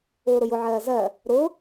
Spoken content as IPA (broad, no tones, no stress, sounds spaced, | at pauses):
ʊː ɾ ʊ j ʊ ʕ ɜː z ɜ | ɾ ʊ